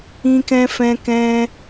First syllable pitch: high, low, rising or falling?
high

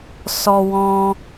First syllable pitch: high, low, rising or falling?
high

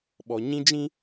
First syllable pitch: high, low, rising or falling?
low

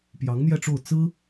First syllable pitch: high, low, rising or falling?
rising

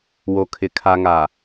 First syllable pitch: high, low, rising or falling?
low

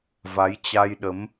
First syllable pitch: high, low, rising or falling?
rising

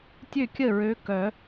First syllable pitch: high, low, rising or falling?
falling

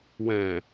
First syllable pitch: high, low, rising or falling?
low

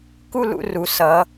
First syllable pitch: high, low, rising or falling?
falling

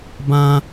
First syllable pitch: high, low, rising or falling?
high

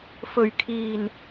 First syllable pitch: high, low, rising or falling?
low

